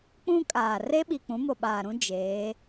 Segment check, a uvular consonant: absent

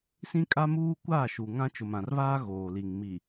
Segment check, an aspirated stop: absent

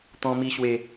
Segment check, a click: absent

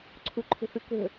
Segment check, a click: present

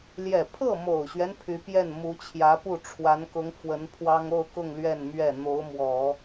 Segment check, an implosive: absent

